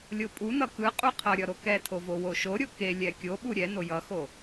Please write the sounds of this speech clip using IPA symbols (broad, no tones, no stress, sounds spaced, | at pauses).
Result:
lʲ o pʼ u n ʌ k ɯ qʼ u qʰ ʌ ɾʲ ʌ ɾ o k ɛ tʰ o v o w o ʃ o ɾʲ o k e lʲ ɛ kʲ o ɓ u ɾʲ ɛ n o j ʌ x o